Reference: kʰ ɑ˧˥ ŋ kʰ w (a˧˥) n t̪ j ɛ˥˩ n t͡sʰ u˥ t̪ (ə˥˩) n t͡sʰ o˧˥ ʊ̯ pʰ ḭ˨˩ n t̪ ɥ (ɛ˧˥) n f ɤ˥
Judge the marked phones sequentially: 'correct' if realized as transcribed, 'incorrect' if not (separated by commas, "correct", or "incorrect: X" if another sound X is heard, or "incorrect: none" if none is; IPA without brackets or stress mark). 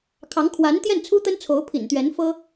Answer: correct, incorrect: ə˥, correct